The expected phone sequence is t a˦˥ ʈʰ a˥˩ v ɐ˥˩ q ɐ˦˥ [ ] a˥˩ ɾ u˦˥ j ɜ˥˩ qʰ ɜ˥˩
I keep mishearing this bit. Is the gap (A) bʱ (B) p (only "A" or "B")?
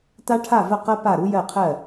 B